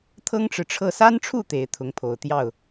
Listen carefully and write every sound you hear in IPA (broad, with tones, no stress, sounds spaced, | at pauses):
t̪ʰ ɤ˥ ŋ ʈ͡ʂ ɻ̩˨ ʈ͡ʂʰ ɤ˥˩ s a˥ n ʈ͡ʂʰ u˥˩ t̪ e˧˥ ɪ̯ t̪ʰ ʊ˧˥ ŋ pʰ o˨˩ ʊ̯ t̪ j ɑ˥˩ ʊ̯